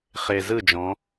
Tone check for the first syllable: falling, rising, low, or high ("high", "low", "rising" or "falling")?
low